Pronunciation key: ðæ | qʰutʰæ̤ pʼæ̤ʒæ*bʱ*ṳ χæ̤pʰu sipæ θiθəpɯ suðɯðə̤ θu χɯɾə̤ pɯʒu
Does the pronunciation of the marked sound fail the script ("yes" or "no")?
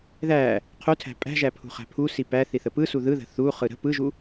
yes